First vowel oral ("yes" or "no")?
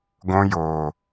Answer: no